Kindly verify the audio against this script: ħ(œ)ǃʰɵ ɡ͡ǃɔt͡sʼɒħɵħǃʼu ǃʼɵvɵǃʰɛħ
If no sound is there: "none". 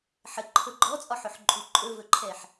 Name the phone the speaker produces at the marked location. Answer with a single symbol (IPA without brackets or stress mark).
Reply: ə